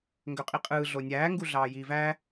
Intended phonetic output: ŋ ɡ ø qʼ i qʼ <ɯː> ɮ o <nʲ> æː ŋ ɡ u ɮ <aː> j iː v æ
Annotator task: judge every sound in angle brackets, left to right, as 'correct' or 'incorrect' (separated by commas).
correct, correct, incorrect